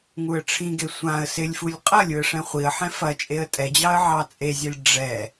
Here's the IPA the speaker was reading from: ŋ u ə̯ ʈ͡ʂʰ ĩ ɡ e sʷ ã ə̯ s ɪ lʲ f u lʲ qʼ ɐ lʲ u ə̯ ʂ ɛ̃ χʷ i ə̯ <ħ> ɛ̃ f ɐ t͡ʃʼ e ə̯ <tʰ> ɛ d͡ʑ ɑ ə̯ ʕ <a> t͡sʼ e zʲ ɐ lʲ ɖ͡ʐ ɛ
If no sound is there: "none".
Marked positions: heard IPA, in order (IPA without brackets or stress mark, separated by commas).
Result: ħ, tʼ, ɑ